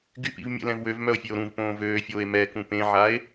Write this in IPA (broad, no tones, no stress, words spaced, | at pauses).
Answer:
ɡypḭv mʲə̰lɛ̃v wøvmœo̯fʲeo̯ ɾũvpõː vøːfʲoːe̯ mɛkũ pẽʕae̯